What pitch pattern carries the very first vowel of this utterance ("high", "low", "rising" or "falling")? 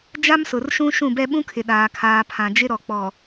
high